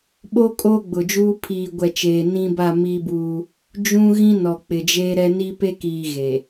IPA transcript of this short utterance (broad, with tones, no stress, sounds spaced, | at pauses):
ɓ o˦ kʼ oː˦ ɡ͡b ʊ˨ d͡ʒ uː˦ pʰ iː˨ ɡʷ ɛ˨ t͡ʃ eː˨ n ĩ˦ b a˦˨ m i˦ b uː˦ | d͡ʒ ũ˦ ɣ ĩ˦ n ɔ˨ k͡p ɪ˨ d͡ʒ eː˦ ɾ ɛ˦ n i˦ p e˦ k iː˨ ɣ e˨